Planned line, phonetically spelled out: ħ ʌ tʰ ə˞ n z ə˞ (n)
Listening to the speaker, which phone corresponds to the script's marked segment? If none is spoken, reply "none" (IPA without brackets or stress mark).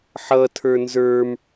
m